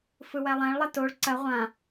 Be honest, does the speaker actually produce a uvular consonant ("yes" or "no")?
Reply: yes